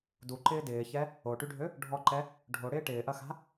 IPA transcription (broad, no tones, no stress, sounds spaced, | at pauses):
d u ǃ ɪː d ɪː ç ɛ | o ʈ y ɖʱ ø | ɖʱ ɔ ǃ ɛ | ɖʱ o ɽ ɪː ʈ ɪː ʔ ɐ x a̤